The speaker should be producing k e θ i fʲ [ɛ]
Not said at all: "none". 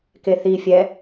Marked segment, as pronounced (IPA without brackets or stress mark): ɛ